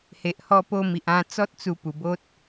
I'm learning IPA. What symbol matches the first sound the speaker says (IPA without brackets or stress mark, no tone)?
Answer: h